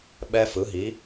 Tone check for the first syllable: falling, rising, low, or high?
high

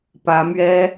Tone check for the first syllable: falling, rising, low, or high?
rising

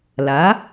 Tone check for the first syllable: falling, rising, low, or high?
rising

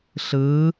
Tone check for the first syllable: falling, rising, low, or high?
rising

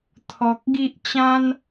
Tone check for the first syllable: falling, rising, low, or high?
low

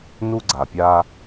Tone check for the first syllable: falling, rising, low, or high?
high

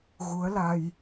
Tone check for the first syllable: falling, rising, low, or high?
rising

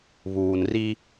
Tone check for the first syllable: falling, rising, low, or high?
low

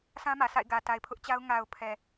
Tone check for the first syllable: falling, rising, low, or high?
high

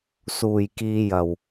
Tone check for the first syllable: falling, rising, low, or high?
low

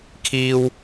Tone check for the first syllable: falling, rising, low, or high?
high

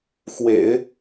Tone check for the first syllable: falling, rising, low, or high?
low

